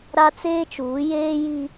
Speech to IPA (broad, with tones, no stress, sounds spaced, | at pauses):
ɾ a˦ t͡s eː˦ t͡ʃ uː˨˦ j eː˦ j i˦